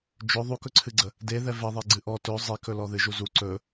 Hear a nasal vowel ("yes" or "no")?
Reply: no